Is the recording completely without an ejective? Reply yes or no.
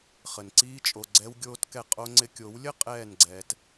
no